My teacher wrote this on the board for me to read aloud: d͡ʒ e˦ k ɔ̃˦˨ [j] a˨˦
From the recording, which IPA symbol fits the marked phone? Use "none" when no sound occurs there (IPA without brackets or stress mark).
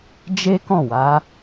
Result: w